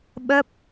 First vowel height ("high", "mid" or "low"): mid